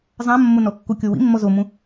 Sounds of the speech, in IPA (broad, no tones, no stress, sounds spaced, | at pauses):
zˤ ã mː o n ɔ kː u kʲ o w ḭ mː ɔ z o m ũ